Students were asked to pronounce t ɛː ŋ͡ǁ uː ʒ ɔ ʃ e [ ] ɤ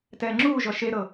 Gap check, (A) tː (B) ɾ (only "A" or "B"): B